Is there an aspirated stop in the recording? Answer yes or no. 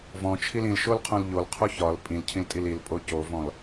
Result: yes